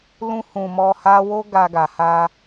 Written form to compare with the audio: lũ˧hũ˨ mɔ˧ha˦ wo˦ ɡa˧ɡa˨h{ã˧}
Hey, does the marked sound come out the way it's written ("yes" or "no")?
no